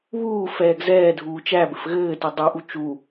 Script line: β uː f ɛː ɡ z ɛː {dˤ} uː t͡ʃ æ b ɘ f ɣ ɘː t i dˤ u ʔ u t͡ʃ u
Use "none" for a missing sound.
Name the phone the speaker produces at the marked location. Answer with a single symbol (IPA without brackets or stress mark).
dʱ